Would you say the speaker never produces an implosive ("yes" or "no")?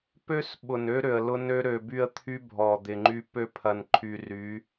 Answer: no